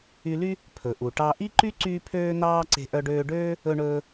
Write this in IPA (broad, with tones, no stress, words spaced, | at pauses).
y˧ly˥ | pʰɵ˩ʔu˩ ʈɑ˧ ʔi˥ǃy˥ ǀyː˥pʰøː˥n̪ɑː˥ǀe̤˧ ʔœ˧ɖøː˧ɖøː˥ | ɵ˧ɳɵː˧